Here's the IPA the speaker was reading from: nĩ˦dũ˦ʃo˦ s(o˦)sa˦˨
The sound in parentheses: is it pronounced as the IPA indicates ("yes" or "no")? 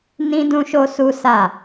no